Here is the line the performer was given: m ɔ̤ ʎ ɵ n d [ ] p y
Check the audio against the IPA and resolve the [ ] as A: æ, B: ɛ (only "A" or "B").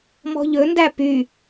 A